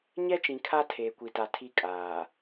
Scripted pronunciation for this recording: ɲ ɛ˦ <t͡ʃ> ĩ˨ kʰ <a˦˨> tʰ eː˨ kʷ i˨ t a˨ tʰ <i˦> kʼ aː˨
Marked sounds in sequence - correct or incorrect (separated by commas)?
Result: correct, incorrect, correct